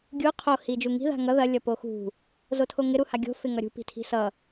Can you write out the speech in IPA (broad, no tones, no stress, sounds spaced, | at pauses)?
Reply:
ɡʲ u qʰ o h i d͡ʒ u ŋ i̤ ð a̤ ŋ ʌ ð ɐ lʲ ʌ p o x ṳ | z o tʰ o ŋ ɪ ɾ u h a ɡʲ o̤ f ɪ ŋ ʌ ɾʲ ṳ p i̤ tʰ i̤ s ʌ